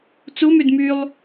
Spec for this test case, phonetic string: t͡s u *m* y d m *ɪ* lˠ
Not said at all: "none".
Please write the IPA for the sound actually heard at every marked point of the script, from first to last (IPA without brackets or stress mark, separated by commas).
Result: m, y